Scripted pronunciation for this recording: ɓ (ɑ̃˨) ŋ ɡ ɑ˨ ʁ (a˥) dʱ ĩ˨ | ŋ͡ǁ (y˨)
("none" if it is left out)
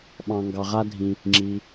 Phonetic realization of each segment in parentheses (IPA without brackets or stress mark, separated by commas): ɑ̃˨, a˥, i˨